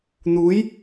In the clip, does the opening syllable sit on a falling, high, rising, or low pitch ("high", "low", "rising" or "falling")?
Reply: rising